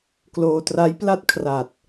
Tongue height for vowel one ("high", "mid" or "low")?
mid